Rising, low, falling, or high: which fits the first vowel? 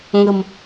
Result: low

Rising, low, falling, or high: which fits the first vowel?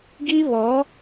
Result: high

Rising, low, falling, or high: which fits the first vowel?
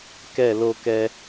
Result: falling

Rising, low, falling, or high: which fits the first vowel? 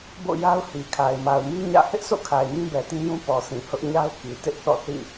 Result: falling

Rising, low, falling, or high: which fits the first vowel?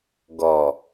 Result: low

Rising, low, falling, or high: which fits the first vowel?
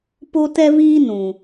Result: high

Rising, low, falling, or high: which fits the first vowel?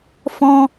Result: high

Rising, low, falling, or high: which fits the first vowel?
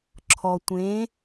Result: low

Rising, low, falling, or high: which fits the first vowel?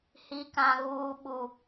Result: low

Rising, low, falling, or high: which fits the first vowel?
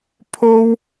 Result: high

